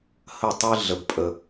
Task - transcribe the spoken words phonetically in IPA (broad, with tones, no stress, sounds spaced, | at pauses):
h ə˦˨ tˤ ɨ˦ ɮ ə˨ b pʼ ə˨